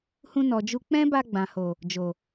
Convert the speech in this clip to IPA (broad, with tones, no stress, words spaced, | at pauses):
hũ˧nɔ˨d͡ʒu˧ k͡pɛ̃˦ba˧ ɡ͡bã˨ho˨ | d͡ʒo˨